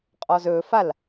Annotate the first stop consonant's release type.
ejective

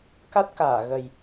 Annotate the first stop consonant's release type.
plain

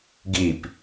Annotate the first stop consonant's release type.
plain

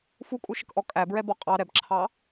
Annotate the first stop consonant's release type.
ejective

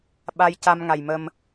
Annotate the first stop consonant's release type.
implosive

